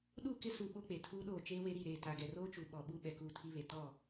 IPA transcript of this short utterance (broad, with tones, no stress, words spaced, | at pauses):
ɗu˦˨ kɪ˦su˨ ɓo˦k͡pe˨ tʰuː˦ɗoː˦˨ t͡ʃeː˦we˦ɾi˦˨ɾeː˦˨ ta˨ɡɛ˨roː˦t͡ʃu˨ ɓɔ˨ɓu˦ ɓɛ˨kuː˦˨tʰi˦βe˨ tɔ˦˨